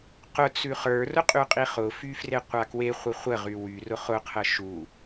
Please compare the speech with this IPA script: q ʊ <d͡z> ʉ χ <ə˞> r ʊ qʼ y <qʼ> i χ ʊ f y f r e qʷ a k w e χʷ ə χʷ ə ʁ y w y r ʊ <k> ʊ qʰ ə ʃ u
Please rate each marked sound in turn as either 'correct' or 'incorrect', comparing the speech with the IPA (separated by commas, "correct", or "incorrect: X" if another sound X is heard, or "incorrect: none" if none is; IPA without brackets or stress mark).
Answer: incorrect: t͡s, correct, correct, incorrect: χ